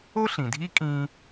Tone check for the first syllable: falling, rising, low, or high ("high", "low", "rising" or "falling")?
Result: high